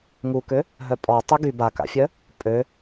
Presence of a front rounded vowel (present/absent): present